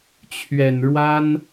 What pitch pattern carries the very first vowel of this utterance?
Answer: low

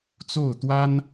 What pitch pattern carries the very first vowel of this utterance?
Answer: falling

